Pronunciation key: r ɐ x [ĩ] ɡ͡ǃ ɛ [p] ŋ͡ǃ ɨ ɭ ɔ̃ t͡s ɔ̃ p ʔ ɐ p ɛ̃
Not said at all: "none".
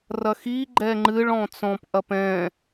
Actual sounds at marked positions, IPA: i, none

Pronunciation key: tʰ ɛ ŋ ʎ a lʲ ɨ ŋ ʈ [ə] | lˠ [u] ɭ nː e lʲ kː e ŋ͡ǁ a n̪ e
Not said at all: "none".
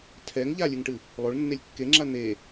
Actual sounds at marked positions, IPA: ɨ, o

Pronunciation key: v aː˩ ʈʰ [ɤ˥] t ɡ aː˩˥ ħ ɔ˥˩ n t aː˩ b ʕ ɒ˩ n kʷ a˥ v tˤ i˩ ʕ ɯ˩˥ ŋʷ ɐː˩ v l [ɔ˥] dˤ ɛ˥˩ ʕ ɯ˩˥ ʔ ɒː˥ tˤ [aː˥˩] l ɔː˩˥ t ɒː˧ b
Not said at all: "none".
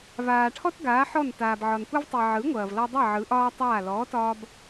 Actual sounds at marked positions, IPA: ɔ˥, ɔ˧, aː˥˩

